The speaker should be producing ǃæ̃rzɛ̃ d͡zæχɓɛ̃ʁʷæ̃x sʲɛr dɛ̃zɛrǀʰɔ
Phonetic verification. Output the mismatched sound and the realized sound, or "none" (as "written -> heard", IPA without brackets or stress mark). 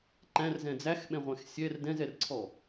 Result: χ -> x